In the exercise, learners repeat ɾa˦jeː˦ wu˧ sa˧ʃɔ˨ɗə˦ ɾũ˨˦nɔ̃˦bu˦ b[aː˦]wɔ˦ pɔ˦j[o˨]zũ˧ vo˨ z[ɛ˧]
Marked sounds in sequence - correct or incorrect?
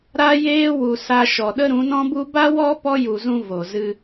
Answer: incorrect: a˦, incorrect: u˨, incorrect: ɨ˧

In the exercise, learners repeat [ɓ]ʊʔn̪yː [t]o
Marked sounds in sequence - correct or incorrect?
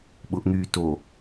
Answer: correct, correct

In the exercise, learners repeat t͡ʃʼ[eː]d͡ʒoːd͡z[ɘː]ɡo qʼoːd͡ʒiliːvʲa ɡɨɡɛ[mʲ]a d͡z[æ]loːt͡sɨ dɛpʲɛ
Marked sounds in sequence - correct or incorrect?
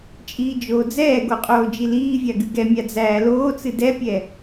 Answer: incorrect: iː, incorrect: ɛː, correct, incorrect: æː

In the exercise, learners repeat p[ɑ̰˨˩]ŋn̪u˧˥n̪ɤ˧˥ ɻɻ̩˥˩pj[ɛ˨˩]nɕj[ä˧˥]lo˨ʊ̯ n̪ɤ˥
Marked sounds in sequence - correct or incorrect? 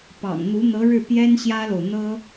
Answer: correct, incorrect: ɛ˥, incorrect: ä˥

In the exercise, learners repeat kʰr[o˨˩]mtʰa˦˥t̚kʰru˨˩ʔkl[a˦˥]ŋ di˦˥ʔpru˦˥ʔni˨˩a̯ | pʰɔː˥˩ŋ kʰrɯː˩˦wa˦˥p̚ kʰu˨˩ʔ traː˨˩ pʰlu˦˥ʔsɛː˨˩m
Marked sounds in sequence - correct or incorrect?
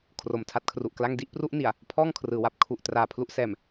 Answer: correct, incorrect: a˥˩

